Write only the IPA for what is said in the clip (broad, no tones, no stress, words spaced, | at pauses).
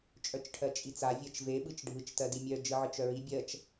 t͡ʃʼœt͡ʃʈʰɜt͡ʃʼit͡sa vʲɜt͡ʃve ɓɯt͡ʃɖʱɯt͡ʃ tɜdimʲœ d͡ʒɯʕɯt͡ʃœɹi bʲɜt͡ʃ